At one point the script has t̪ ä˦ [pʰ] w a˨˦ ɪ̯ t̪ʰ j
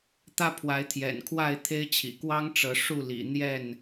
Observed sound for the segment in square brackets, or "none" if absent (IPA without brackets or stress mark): pʰ